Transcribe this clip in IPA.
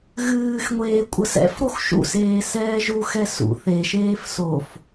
ɣ ɨː x ŋʷ eː kʷʼ ə s ɛ̰ f ɾ o x ʃ ṵ s eː s ɛː ʒ u x ɛ s ṵ θ e ʃ eː f s o f

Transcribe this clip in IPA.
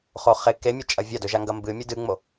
χ o χ e k e mʲ ɐ t͡ʃʼ ɐ vʲ a d ɵ ʒ a ŋ ɡ ɐ m b ɨ mʲ ɨ d ɨ ŋ͡m o

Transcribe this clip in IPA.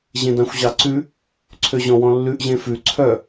ʑ ẽ d ɑ̃ xʷ ʑ ɑ ǀ ʉ | ǀʰ ø ʑ ɔ̃ w ɔ̃ lː ʉ ʔ ʑ ẽ f ʉ ǀʰ œ

